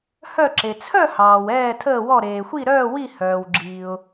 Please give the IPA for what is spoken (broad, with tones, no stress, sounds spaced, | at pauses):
h œ˥˧ ǁ e˨ t͡sʰ œ˥˧ h ɑː˨ w ɛː˥˧ tʰ əː˥˧ w ɔ˥˧ ɾ eː˨ xʷ i˥˧ ɾ œː˥˧ w i˥˧ h œː˨ w ɡ͡ǁ iː˨ ʊ̯